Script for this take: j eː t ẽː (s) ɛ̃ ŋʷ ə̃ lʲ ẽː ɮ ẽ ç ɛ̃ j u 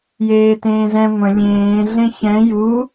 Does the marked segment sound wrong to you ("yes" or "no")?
yes